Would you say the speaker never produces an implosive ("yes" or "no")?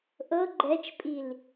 yes